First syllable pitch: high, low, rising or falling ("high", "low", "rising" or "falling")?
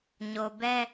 low